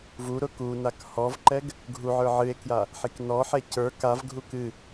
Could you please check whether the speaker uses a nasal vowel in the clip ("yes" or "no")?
no